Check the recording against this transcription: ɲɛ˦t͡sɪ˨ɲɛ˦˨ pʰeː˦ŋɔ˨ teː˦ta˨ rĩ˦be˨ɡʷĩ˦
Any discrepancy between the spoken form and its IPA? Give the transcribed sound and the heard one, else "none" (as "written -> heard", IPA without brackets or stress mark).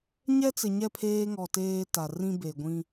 none